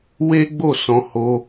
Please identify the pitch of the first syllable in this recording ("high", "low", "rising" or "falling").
high